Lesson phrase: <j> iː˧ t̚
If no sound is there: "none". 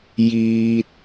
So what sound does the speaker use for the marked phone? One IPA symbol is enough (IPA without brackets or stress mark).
j